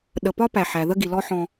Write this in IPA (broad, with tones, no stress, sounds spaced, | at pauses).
ɗ ə˨ p ɒ˥ p æ˩ ħ æ˩ ð ə˥ ɡ i˩ l ɔ˦ ħ ɔ̃˨